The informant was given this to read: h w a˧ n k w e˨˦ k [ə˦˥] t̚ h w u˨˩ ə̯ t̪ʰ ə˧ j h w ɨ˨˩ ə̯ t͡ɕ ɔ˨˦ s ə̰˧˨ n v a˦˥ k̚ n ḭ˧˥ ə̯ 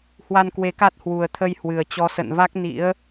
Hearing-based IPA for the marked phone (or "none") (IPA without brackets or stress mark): a˦˥